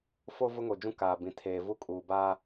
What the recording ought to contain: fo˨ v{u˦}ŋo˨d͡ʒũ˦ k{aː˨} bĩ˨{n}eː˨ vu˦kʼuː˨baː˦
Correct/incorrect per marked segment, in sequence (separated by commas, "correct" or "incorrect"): incorrect, correct, incorrect